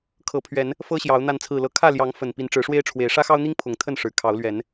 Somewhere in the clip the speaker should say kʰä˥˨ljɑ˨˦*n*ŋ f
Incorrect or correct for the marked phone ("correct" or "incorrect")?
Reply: incorrect